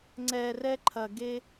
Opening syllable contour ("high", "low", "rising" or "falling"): low